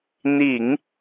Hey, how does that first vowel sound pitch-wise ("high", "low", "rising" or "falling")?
low